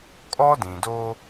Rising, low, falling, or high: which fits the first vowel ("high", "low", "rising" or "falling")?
high